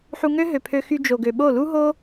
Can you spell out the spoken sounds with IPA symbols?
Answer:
ħ u˧ ŋ ø˦ ɦ ø˨ pʰ ø˧ x y˧ d͡ʒ o˨ ɡ ø˨ ɓ o˦˨ l u˦ ɦ o˦

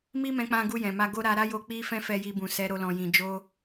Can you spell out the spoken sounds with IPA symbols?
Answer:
m i˦ m ɛ̃˧ k͡p ã˧ ɡ u˧ j ɛ̃˨ m a˧ ɡ o˦ ɾ a˧ ɾ a˦ j o˧ k͡p i˦ f ɛ̃˦ f ɛ˧ j i˧ b ũ˨ s ɛ˨˦ ɾ o˧ l ɔ̃˨ j ĩ˨ d͡ʒ o˧

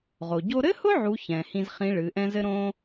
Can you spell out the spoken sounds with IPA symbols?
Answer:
ʁ o˩ ɟ o˥ ɾ ɘ˥ h ʊ˥ ʕ u˧˥ ç ɛ̃˩ h ĩ˧ z χ ĩ˧˥ ɭ ɨ˩˧ ʔ ɛ̃˥ z ɘ˥ ɾ õ˥

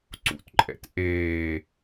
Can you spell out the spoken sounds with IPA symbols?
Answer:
ǀ ṵ t ǃʼ ɛ̰ t ʔ eː

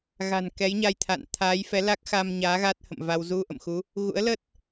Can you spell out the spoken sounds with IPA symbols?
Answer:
ɣ a̤˨˩ n k ɛ˨˦ j ɲ a˧ j t̪ʰ a̰˧˨ n t̪ʰ aː˨˦ j f ɛ˨˦ l a˦˥ k̚ x a˧ m ɲ aː˨˦ ɣ a˦˥ t̚ h ə̰˧˨ m v a˧ w z u˧ ʔ ə̰˧˨ m x u˨˦ | ɣ ṵ˧˥ ə̯ l ə˦˥ t̚

